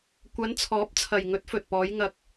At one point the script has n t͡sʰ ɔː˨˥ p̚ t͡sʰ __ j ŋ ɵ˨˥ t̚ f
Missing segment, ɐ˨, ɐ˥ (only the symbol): ɐ˨